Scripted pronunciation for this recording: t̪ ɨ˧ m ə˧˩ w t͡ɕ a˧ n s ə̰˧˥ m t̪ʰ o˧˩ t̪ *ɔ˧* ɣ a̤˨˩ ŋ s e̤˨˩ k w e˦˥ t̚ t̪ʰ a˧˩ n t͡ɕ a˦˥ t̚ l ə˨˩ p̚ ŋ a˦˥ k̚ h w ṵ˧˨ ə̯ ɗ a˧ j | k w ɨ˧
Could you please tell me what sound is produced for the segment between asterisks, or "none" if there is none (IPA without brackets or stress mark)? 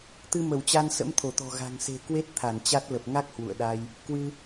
ɔ̤˨˩